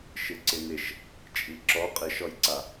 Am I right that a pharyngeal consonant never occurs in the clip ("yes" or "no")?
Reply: yes